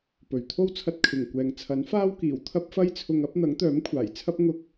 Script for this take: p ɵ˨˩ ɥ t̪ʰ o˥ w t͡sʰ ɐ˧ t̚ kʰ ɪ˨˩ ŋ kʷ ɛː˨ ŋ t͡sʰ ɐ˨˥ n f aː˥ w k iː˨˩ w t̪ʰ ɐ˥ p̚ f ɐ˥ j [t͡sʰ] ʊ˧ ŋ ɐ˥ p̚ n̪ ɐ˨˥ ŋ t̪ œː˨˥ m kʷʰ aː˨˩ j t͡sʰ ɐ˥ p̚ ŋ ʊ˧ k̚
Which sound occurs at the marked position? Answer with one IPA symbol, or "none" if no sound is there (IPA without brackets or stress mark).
t͡sʰ